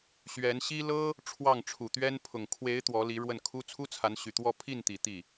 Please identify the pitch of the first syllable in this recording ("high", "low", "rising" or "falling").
rising